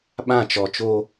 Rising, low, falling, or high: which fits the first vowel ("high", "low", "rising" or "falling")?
falling